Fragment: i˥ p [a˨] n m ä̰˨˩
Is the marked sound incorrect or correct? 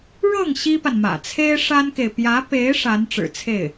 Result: correct